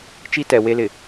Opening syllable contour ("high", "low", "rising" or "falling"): high